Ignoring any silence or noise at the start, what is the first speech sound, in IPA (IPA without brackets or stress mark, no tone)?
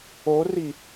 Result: o